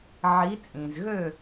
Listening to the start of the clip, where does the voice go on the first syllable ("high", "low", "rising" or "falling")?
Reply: rising